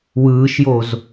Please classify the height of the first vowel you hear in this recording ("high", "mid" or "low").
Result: high